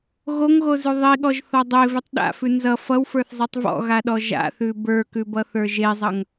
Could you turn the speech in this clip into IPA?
ɣ o ŋ ɣ o z ʉ ðˤ i ɠ ɔ ʒ θ ɒ dˤ e v e tˤ ɗ a̰ f ʉ n z ʌ f ʌ w f ə˞ θ zˤ i tˤ v ɔ̰ ɣ a ɗ ɔ ʒ a̰ θ ʉ b ə˞ k ʉ b ʌ θ ə˞ ʒ e zˤ ʌ ŋ

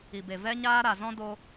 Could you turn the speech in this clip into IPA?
i˨ b e˨ v ɛ˧ ɲ aː˧ ɾ a˨ z ɔ̃˧ d o˦

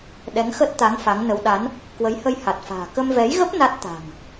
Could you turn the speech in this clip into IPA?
ɗ ɛ˨˦ ŋ x ə˦˥ t̚ t̪ a˨˦ ŋ f a˨˦ ŋ n ə˨˦ w ɗ a˨˦ n | k w ə˨˦ j h ə˧ j h a˨˩ t̚ f a̤ː˨˩ k ə˧ m v ɛ˨˦ j ɣ ə˦˥ p̚ n a˦˥ t̚ t̪ a̤˨˩ ŋ

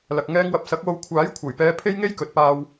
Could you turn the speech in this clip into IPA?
l ɐ˨ k̚ ŋ ɛː˧ ŋ w ɐ˨ p̚ s ɐ˨˥ k̚ w o˧ w kʷʰ aː˨˥ j kʷʰ ɐ˨˩ j p ɛː˨˧ pʰ e˥ j ŋ e˥ j k ɵ˨˥ t̚ p aː˧ w

